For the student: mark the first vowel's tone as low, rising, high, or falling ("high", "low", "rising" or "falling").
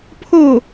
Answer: falling